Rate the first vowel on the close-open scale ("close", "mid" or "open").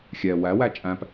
mid